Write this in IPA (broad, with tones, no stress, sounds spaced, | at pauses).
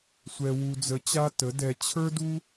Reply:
sʷ ɛ˧ w u˧ d͡z ə˧ t͡ɕ a˦ t ə˨˦ d ɛ˧ t͡ɕʰ ə˞˦ d u˦